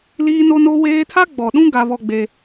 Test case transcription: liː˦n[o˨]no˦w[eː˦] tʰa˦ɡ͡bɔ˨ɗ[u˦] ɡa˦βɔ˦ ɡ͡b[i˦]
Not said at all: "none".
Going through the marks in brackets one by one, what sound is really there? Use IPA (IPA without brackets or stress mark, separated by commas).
o˦, eː˦, ũ˦, e˦